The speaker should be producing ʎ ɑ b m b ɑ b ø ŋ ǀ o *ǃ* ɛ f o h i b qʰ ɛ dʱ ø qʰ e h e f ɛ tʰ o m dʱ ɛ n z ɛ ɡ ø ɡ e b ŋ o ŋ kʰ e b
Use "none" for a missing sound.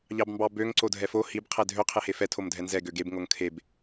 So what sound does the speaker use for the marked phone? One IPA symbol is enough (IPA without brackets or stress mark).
dʱ